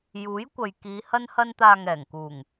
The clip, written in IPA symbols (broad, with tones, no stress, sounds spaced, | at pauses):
j uː˨˥ j kʷ ɐ˨ j k iː˨˧ h ɐ˧ n h ɐ˧ n t̪ aː˨ ŋ ɛː˨˩ ŋ k uː˨˩ ŋ